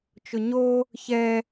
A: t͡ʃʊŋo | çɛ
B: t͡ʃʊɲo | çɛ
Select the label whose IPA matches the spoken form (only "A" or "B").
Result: B